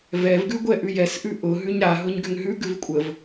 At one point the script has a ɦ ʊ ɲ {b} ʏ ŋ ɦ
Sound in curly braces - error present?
yes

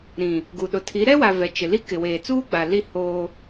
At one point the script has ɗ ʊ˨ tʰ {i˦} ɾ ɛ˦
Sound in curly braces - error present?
yes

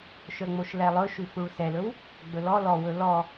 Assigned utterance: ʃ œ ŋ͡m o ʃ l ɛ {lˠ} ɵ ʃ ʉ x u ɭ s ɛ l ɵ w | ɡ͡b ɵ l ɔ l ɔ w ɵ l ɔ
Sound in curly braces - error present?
no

